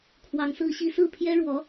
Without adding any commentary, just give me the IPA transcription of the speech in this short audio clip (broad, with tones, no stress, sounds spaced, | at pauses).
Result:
kʰ w ɑ˧˥ ŋ s ɹ̩˥ ɕ i˥ s ɹ̩˥˩ pʰ j ɛ˥ ɻ w ɔ˧˥